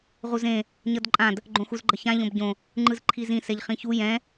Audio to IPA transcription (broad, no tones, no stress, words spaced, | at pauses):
ʁuzẽ | ɲʌdǃʼãd | ɡ͡ǃõxuzɡ͡ǃʌçã ʎõbɟõ | ŋ͡ǃɯzǃʰizĩ sɛʎχĩçu jɛ̃